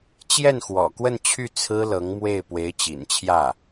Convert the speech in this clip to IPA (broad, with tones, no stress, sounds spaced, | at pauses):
t͡ɕ j ɛ˥˩ n x w ɔ̰˨˩ k w ə˥˧ n t͡ɕʰ y˥˩ t͡sʰ ɹ̩˥ l ɤ˧˥ ŋ m w e˥˩ ɪ̯ p w e˧˥ ɪ̯ t͡ɕ ḭ˨˩ n t͡ɕʰ j ä˥˩